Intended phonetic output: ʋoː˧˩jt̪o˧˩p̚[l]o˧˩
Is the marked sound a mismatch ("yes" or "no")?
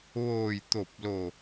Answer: no